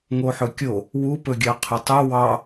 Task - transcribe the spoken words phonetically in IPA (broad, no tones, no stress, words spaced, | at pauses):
ŋoħɵkʲo | wupɵɡʲɑ qʰʊtˤu wɑ